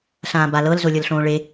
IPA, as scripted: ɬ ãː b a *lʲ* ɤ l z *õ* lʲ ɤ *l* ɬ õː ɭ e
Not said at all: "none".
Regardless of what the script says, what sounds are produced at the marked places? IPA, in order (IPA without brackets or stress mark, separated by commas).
l, o, l